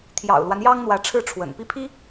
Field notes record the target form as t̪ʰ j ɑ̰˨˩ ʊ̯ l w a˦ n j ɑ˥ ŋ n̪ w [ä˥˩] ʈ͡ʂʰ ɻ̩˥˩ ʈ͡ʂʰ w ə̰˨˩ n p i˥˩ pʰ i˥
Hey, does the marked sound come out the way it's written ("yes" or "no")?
no